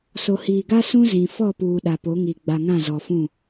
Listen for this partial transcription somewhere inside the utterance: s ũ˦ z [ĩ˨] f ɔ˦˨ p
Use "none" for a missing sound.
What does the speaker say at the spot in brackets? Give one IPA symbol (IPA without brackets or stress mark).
ĩ˨